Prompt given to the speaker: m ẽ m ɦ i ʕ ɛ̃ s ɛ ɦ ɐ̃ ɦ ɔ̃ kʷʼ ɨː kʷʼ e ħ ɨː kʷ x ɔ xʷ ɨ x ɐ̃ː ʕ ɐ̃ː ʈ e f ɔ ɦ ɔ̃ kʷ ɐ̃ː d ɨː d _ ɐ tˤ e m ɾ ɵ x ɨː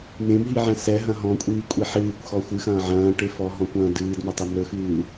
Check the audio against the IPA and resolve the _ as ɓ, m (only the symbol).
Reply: m